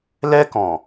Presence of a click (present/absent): absent